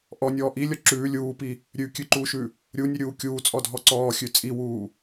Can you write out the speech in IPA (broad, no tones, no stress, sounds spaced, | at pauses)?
ʔ ɔ nʲ ɔː ʔ i lʲ ɔ ǁ ʉː lʲ uː p i | ɾʲ ʉ kʲ ʉ ǃ uː ʃ ʉ | ɾʲ u nʲ ʉ ɾʲ uː kʲ uː t͡sʼ ɔ dʱ ɔ ǀ ɔː xʲ ʉ t͡sʼ i w uː